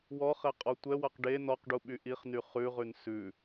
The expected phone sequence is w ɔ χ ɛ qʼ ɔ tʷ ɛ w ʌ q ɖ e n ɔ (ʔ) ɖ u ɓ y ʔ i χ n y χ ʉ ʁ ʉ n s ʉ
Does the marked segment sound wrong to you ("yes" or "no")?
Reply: yes